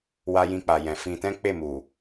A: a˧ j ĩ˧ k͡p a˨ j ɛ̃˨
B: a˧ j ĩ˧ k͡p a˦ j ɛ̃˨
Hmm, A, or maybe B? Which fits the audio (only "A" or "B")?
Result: A